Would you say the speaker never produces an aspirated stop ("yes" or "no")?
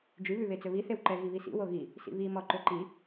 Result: yes